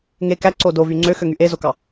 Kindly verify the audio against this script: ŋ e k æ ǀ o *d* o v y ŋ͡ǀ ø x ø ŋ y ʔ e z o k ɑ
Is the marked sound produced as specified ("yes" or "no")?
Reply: yes